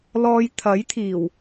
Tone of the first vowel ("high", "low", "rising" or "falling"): low